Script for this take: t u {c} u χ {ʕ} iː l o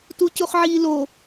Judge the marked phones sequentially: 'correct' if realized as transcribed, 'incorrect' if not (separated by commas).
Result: correct, correct